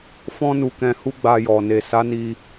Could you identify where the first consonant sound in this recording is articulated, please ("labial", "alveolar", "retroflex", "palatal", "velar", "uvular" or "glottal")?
labial